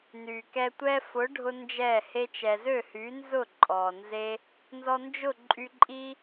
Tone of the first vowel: low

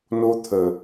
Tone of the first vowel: high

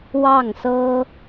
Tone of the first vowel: falling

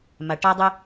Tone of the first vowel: low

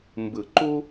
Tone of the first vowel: low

